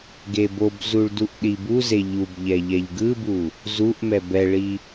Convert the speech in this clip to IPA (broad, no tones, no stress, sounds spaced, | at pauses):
ɡ e b o b z u ɭ d u ʔ ɗ i b u z e ʎ u b ʎ ɛ ʎ ɛ ʎ ɡ ɯ b u | z u ʔ m ɛ b ɛ ɭ i